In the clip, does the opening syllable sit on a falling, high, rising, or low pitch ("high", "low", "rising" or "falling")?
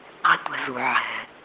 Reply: high